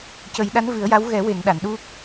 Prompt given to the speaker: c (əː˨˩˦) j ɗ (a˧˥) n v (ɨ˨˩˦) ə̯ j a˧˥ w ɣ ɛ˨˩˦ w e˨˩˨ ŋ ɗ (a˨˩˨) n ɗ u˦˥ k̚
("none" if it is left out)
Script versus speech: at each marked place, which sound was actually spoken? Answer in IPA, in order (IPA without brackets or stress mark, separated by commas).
ə˨˩˦, a˧˥, ɨ˨˩˦, a˨˩˨